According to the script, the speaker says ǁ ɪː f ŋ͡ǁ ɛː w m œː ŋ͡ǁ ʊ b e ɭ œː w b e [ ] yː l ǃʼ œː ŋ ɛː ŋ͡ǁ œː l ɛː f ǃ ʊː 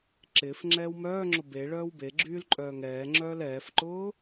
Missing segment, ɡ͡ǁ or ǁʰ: ɡ͡ǁ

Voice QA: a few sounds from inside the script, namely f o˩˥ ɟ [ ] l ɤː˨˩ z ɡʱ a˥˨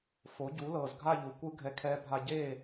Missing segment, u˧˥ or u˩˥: u˩˥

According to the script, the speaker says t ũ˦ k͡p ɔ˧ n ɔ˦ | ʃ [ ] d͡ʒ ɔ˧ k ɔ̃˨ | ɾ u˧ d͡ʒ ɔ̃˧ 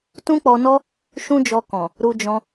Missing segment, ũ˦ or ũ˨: ũ˦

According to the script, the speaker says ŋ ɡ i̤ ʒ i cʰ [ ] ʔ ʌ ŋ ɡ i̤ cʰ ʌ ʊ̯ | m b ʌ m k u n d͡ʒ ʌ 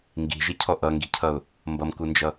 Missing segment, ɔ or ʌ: ɔ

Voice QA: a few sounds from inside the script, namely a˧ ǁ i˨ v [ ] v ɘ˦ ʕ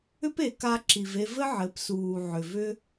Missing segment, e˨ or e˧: e˧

